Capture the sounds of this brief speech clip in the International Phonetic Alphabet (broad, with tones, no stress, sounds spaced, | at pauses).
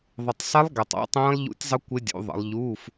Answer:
ðˤ ɪ˨ tˤ sˤ ɪ˦˥ lˠ ɡ ɛ˨ tˤ ɑ̰˦˥ tˤ ɛ̃ː˦˥ lˠ ʎ ṵ˦˥ tʲ zˤ ə˦˥ kʷ ɪ˦˥ dʲ ṵ˨˦ ðˤ ə̰˨˦ lˠ ʎ u˧˥˧ f